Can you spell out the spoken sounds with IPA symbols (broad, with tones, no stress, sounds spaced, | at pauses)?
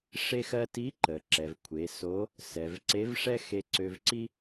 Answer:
ʂ e˥ x ɜ˥ t i˧˥ ǃ ə˩ ǁ ɛ˩ v kʷʰ e˩˧ s o˧˥ | s ɛ˩ v ǀ e˧˥ v ʂ ɛ˥ x e˧ ǀ ø˧ v ǀ i˥